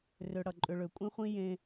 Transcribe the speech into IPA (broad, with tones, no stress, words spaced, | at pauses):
rø˧ɽʌ˨ǃʼʏ˧ɭø˨ kʷʼĩ˦χʷĩ˦ jẽ˦